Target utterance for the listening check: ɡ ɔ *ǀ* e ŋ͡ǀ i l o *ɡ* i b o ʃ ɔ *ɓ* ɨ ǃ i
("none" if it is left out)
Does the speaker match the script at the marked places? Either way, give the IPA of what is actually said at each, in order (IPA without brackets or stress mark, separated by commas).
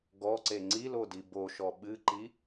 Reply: ǀ, d, ɓ